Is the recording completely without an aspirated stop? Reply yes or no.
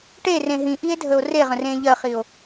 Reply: yes